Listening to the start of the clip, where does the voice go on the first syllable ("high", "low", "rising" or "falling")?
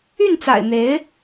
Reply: falling